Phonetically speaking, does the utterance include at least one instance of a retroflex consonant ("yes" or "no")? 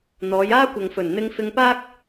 no